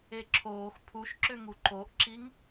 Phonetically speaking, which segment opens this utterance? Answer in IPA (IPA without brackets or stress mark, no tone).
e